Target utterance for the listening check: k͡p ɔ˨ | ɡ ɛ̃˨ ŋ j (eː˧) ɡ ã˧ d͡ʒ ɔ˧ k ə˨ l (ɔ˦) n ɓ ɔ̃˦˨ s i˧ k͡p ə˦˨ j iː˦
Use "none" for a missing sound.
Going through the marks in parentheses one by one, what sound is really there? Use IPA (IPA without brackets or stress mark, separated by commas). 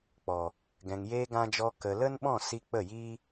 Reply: eː˧, ə˦